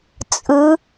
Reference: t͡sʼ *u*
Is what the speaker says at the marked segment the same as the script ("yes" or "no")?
no